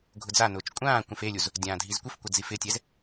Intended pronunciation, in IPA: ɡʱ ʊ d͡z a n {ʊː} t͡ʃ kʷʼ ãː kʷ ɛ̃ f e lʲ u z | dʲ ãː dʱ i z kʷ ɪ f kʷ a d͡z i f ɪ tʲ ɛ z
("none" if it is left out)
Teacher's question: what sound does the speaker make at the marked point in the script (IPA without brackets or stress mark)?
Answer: ʊː